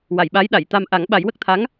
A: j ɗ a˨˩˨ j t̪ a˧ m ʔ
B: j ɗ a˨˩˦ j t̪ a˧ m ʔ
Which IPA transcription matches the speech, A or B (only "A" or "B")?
A